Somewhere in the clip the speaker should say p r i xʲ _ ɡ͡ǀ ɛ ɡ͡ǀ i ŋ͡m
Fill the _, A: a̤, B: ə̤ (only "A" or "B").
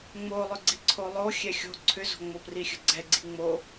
B